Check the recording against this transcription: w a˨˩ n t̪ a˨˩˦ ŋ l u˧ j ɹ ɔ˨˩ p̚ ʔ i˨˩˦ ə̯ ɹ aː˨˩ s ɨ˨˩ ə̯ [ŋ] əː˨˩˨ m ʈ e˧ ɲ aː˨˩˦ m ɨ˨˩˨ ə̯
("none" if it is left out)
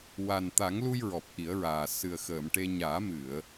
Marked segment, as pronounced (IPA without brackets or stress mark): x